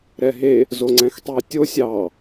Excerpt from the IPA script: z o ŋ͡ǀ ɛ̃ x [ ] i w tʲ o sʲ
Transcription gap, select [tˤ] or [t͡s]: tˤ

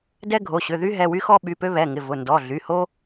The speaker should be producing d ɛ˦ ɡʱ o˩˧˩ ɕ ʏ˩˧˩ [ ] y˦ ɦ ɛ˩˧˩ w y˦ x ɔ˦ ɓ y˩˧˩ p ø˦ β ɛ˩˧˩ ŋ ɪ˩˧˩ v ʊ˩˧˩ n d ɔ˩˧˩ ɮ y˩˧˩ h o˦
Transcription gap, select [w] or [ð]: ð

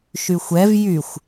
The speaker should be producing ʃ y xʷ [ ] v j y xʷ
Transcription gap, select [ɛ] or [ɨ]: ɛ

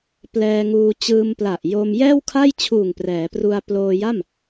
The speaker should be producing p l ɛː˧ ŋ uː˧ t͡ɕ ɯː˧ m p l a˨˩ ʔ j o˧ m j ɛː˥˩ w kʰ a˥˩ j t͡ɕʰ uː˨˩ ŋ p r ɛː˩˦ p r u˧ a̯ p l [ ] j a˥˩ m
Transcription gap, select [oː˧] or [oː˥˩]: oː˧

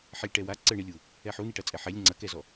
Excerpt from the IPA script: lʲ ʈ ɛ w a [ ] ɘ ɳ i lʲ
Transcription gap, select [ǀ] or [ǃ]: ǀ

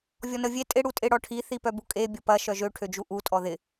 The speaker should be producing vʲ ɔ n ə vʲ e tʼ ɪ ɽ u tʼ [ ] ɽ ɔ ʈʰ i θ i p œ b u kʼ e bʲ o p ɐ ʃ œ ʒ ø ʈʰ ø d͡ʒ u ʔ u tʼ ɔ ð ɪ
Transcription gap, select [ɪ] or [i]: ɪ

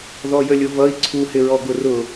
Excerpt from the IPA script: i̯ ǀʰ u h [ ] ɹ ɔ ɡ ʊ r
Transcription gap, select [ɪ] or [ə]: ɪ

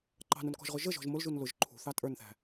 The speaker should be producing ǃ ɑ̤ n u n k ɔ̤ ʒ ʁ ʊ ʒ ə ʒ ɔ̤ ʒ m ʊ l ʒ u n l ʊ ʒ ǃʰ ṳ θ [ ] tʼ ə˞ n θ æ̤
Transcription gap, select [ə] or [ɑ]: ɑ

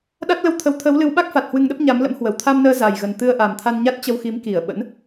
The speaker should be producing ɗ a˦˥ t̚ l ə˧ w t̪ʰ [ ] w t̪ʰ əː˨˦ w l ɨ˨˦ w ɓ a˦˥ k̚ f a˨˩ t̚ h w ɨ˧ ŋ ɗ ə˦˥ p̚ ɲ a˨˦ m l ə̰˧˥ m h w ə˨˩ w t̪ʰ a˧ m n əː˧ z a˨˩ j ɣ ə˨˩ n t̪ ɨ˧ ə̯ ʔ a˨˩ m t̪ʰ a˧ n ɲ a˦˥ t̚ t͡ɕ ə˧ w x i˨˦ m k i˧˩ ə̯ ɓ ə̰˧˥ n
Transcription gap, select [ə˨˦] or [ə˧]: ə˨˦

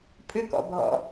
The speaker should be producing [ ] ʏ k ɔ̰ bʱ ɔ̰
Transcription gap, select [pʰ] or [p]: pʰ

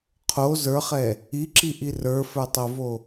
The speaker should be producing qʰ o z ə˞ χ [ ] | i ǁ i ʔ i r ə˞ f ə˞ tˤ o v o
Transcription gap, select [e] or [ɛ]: ɛ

